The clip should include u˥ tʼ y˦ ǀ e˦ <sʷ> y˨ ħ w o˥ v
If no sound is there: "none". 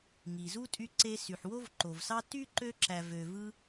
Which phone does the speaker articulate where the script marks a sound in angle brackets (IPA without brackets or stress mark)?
s